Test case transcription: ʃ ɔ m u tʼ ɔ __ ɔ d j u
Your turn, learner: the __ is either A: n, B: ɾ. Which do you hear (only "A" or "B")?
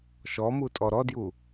B